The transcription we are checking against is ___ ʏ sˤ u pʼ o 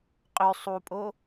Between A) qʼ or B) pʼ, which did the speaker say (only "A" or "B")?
A